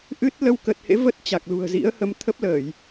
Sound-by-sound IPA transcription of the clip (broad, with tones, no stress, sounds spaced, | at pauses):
ʔ ɨ˦˥ t̚ l ə˧ w k ə˨˩ t̚ h ḛ˧˥ v ə˦˥ t̚ t͡ɕ a˨˩ k̚ l ṳ˨˩ ə̯ z ḭ˧˥ ə̯ h ə˨˦ m t̪ʰ ə˦˥ p̚ l əː˧˩˨ j